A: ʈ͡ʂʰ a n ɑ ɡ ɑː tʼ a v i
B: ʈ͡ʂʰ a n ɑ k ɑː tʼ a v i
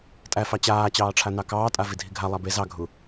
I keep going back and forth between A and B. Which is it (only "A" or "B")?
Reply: B